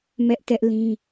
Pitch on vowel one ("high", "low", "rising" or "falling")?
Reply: high